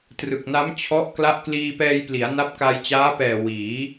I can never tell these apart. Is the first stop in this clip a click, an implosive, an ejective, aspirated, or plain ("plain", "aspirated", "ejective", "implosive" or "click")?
plain